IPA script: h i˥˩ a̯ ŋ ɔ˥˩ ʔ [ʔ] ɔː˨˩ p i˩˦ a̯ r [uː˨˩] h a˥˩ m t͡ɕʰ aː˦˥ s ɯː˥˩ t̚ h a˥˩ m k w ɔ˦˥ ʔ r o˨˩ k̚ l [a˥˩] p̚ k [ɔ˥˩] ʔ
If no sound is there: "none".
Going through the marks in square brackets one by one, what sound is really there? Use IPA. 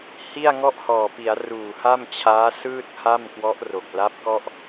h, uː˨˩, a˦˥, ɔ˥˩

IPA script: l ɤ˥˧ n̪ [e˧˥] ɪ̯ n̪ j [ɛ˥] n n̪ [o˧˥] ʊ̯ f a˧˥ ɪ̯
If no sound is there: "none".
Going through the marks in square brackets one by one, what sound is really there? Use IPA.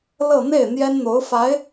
e˥˩, ɛ˥, o˧˥

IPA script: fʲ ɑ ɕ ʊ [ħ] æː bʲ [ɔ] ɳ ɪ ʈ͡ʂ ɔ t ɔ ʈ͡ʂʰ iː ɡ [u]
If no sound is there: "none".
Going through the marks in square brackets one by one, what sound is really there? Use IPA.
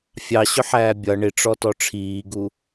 ħ, ʌ, u

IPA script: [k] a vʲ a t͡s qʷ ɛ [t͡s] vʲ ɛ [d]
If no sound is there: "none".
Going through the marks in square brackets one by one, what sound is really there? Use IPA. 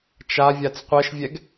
t͡ʃ, ʃ, ɡ

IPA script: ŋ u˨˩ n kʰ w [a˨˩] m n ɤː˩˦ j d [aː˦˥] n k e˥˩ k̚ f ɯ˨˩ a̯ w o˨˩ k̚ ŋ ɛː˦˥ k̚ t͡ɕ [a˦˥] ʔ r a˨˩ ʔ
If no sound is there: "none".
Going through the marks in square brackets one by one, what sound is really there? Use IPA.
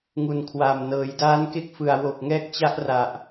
aː˨˩, aː˦˥, a˦˥

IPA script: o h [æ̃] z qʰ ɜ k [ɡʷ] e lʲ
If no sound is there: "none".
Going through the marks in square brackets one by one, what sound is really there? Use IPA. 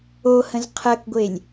ə̃, ɡʷ

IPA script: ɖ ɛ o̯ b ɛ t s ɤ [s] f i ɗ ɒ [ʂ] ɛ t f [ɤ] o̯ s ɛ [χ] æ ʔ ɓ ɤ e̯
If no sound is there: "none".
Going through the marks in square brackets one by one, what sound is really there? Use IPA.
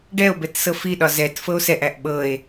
none, z, ɤ, ʔ

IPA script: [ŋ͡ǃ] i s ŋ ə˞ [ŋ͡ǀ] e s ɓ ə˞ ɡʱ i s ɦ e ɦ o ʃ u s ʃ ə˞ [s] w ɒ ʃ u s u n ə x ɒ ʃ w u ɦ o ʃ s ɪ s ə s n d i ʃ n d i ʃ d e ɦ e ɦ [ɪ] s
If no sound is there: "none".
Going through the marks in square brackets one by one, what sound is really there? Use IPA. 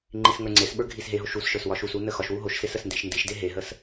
ŋ͡ǃ, ŋ͡ǀ, s, ə

